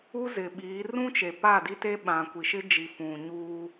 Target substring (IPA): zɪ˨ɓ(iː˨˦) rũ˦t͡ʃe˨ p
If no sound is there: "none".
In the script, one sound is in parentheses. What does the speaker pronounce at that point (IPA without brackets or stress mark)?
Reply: iː˨˦